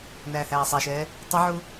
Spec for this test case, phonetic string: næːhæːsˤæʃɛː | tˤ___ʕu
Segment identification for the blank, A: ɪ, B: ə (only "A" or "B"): A